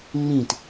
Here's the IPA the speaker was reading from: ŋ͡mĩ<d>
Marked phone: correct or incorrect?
incorrect: t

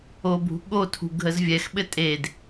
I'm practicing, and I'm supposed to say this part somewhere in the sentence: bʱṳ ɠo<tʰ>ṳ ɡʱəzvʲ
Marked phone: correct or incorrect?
correct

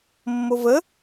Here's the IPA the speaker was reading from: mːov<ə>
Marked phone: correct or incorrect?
correct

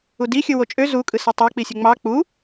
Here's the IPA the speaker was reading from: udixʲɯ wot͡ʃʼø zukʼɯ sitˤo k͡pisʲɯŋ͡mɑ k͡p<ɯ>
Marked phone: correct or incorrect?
incorrect: u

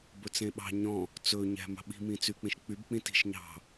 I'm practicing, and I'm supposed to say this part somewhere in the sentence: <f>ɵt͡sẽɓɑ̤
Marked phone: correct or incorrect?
incorrect: b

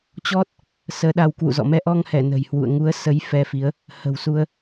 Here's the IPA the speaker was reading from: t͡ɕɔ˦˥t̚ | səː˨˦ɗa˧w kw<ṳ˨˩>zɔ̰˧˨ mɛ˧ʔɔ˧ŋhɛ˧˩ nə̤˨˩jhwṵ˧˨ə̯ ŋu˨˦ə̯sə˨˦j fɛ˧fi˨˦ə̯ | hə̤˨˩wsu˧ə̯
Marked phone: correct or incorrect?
incorrect: ṵ˧˨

